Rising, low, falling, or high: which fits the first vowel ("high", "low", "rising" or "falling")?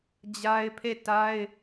high